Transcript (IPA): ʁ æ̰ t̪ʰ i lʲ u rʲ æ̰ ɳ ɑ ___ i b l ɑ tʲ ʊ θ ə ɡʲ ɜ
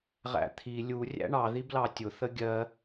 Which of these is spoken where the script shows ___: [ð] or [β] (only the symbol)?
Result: ð